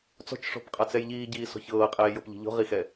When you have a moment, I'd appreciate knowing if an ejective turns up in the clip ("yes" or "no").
yes